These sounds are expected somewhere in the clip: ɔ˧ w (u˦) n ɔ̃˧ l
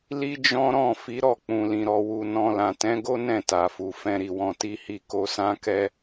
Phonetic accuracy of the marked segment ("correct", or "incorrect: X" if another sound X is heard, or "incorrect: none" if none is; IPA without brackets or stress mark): incorrect: u˨